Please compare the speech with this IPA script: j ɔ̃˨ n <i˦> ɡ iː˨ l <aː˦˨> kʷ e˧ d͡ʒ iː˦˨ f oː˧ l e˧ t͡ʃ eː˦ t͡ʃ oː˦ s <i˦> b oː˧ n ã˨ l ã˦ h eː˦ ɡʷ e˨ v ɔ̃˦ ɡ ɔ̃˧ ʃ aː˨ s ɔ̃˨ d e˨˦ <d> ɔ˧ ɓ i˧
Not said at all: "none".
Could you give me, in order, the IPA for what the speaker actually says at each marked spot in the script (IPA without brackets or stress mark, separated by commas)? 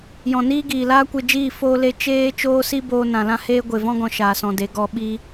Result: iː˦, aː˦, i˦, ɡ